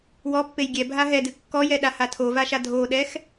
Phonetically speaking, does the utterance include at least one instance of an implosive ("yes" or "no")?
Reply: yes